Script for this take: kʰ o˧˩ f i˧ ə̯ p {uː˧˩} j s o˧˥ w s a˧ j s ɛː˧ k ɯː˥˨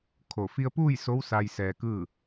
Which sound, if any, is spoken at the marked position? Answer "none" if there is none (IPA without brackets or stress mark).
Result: uː˥˨